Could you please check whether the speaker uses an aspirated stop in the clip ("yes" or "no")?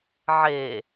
no